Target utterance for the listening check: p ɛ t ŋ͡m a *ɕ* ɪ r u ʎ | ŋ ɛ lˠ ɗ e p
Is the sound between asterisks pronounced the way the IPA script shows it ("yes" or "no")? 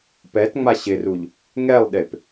yes